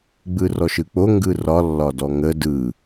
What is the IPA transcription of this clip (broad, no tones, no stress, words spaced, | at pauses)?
ɡ͡bɯrɔʃɯk͡po ŋɡɯrɒ lːɒdɔŋə dɯ